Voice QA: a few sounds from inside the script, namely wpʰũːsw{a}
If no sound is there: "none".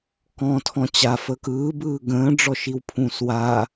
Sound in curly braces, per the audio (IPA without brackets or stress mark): a